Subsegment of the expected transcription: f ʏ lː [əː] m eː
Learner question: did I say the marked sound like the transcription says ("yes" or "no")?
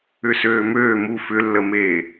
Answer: no